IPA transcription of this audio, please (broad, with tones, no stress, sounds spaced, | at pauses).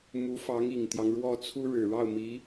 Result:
m u˧˥ f ɑ˧˥ ŋ i˨˩ ŋ t̪ j ɑ˦ ŋ ɻ w ɔ˥˩ t͡sʰ u˥ ɻ ɻ̩˨˩ ɻ ɑ˥˩ ʊ̯ m i˧˥